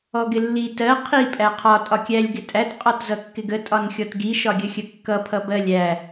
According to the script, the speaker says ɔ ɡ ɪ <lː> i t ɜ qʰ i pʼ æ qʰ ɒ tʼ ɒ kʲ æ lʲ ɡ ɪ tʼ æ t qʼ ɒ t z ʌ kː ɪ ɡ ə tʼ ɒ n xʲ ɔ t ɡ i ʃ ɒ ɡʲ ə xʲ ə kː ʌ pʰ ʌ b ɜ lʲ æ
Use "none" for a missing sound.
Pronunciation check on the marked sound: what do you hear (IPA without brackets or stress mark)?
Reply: lː